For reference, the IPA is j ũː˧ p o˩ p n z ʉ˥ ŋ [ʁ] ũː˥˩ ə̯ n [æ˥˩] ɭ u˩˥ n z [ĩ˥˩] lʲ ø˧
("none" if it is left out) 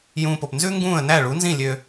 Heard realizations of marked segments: ɡ, æ˥˩, ĩ˥˩

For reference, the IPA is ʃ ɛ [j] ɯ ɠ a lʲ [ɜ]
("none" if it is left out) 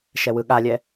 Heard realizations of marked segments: w, ɛ

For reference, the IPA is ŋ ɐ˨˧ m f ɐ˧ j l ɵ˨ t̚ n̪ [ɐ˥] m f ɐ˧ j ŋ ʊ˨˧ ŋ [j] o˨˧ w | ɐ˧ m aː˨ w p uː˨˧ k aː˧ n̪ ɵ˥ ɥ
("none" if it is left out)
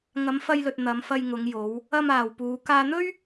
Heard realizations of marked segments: ɐ˨˧, j

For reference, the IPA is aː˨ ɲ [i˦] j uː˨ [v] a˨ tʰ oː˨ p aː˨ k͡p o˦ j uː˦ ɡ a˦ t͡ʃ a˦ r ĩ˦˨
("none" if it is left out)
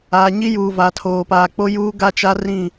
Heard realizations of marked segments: i˦, v

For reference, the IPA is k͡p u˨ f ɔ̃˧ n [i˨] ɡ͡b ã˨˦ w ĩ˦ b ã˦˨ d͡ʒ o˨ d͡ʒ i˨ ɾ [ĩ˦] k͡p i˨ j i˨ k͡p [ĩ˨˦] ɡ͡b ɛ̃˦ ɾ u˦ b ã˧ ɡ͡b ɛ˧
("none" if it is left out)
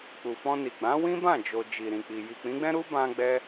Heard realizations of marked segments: i˨, ĩ˨, ĩ˨˦

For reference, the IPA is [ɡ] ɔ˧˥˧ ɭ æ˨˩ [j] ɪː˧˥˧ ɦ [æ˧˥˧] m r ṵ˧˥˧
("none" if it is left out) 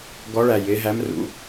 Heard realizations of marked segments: ɡ, j, æ˧˥˧

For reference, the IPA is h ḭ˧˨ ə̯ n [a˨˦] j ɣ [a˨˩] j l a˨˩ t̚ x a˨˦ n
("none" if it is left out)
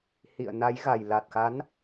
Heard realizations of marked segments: a˨˦, a˨˩

